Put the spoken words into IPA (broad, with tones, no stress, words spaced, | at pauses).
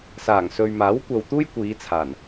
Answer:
saː˨˩ŋsɵ˨ɥmaː˨˥w kʷɐ˨wt̪uː˥j kʷiː˨˧t͡sʰaː˨˩n